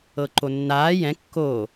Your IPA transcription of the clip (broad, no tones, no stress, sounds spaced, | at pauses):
ɤ ǃ o nː aː j ɛ̃ kː o